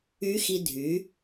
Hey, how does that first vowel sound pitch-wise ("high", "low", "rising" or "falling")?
rising